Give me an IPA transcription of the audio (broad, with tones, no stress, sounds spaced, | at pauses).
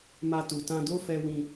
m a˧ t u˨ t ã˧ d o˦ f ɛ˧ w ĩ˧